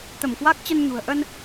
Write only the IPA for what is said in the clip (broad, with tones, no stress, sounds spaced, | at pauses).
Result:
t̪ ə˧˩ m k w a˦˥ k̚ t͡ɕ ə˧ n ɲ ṳ˨˩ ə̯ ʔ ə˧ n